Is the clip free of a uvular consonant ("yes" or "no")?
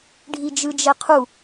no